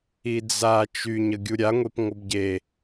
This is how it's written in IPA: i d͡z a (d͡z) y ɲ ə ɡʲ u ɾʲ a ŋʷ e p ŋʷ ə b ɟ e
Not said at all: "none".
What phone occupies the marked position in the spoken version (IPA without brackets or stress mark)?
t͡ʃ